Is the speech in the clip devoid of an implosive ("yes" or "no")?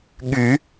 no